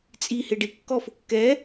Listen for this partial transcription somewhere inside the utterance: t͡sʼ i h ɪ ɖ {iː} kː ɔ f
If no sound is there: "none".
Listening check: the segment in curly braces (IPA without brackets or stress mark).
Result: i